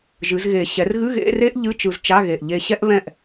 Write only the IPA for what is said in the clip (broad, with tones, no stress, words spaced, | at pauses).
ʒɨ˩˧zɣe˨˩ ɕɛ˩˧rɣɨ˧˥˧ɣḛ˧˥˧ re˥ʔʎɨ˧˥˧ t͡ʃɯ˧zt͡ʃa˧˥˧ɣe˨˩ʔ ʎe˧ɕɛ˥ʔβɛ̃˥˨ʔ